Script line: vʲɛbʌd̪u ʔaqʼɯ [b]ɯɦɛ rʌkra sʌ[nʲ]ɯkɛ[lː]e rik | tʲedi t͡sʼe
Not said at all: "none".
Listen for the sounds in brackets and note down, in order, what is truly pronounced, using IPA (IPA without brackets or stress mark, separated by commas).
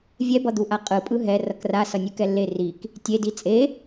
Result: pʼ, nʲ, lː